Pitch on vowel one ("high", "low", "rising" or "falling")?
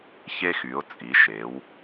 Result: high